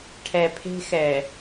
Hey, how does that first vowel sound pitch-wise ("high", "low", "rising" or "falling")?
low